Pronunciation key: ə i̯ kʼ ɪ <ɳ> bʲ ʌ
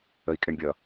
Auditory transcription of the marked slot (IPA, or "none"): ɳ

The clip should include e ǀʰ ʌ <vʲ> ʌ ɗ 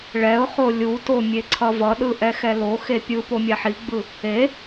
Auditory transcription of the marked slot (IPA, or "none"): v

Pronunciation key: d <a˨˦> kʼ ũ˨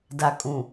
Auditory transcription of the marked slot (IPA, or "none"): a˨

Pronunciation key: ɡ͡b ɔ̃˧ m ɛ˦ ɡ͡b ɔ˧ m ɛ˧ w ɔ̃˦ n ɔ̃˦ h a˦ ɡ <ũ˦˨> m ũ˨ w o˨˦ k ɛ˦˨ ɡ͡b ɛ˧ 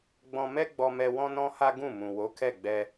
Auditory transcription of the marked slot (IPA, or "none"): ũ˦˨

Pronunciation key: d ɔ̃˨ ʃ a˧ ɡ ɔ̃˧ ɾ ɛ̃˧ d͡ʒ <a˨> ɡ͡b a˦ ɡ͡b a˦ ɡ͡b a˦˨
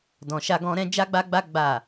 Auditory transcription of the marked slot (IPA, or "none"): a˦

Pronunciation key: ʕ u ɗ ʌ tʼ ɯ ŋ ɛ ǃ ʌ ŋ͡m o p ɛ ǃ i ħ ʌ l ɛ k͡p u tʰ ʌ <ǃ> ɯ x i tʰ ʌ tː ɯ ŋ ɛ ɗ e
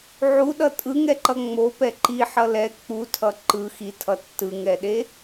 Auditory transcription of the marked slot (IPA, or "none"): ǃ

